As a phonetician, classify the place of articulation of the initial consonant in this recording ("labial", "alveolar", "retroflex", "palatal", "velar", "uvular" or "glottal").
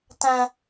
alveolar